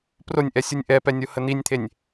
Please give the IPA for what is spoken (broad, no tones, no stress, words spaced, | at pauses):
pronʲʔɛsʲunʲ ʔɛpɛnʲohə n̪inʲt̪ʰenʲ